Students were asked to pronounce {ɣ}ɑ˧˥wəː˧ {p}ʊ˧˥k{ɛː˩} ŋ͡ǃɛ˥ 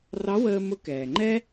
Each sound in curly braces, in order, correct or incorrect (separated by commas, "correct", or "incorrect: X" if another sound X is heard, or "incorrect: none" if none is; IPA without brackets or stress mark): incorrect: r, incorrect: m, correct